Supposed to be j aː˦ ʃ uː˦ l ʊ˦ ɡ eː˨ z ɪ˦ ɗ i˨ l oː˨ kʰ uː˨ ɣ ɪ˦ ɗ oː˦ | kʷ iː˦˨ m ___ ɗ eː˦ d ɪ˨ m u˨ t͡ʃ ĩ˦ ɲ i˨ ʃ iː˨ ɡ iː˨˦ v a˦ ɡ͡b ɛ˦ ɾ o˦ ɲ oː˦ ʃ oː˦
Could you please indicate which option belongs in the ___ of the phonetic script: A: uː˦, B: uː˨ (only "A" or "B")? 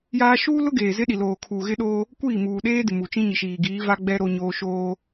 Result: B